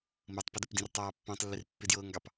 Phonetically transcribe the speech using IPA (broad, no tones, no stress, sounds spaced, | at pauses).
m ɤ tˤ p ə d ə p d ĩ r tˤ ɑː pː ɑ̃ tˤ lː ɪ r pː ɪ d j ɤː ŋ ɡ ɑ p